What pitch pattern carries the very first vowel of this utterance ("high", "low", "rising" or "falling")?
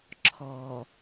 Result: low